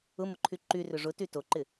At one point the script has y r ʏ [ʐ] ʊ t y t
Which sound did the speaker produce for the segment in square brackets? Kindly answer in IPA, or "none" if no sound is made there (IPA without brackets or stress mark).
ʐ